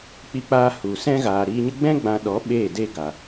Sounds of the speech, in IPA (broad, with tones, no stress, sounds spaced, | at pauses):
k͡p i˧ k͡p aː˧ h u˨ s ɛ̃˦ ɣ aː˨ ɾ iː˧ ɲ ə˦ ɡ͡b ɛ̃˦ ɡ͡b ã˧ ɗ ɔ˨˦ ɓ eː˦˨ d e˦ ɡ a˨